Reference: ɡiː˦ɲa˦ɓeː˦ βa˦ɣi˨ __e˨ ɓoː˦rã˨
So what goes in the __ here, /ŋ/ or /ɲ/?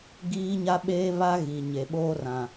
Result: ɲ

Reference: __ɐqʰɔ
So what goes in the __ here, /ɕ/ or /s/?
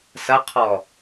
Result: s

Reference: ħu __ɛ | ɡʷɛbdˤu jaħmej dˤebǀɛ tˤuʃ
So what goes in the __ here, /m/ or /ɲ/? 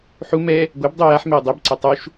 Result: m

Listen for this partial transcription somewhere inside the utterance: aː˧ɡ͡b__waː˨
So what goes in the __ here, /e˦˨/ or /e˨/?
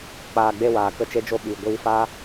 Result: e˦˨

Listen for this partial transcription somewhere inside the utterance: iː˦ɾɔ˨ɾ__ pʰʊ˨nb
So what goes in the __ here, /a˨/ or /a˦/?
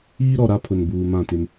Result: a˦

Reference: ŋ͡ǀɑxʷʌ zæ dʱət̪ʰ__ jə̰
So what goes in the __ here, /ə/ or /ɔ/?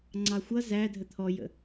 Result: ɔ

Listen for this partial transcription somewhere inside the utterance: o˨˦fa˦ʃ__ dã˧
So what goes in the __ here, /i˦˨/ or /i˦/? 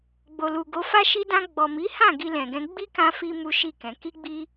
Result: i˦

